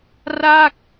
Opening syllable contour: falling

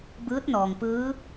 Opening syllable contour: rising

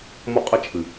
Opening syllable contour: high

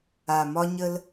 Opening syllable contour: low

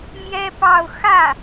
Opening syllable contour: high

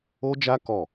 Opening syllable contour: high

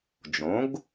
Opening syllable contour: rising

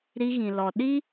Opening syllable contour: high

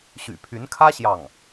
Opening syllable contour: low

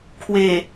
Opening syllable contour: low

